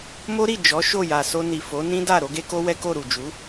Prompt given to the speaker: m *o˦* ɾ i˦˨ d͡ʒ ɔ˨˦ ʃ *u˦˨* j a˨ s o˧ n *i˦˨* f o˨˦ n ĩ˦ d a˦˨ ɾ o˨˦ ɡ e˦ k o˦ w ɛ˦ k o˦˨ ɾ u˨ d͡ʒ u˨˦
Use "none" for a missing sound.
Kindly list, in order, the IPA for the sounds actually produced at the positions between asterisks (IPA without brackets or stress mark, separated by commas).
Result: o˦, o˦˨, i˨